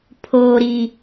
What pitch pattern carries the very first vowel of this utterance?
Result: low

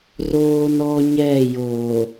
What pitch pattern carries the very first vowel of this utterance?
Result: high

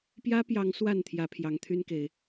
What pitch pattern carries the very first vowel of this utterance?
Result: high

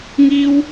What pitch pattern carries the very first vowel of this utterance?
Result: high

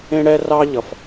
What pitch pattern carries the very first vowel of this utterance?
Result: high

